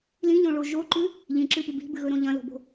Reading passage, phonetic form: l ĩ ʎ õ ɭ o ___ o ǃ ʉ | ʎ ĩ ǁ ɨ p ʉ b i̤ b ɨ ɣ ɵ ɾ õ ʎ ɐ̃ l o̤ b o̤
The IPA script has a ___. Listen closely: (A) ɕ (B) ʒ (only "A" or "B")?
B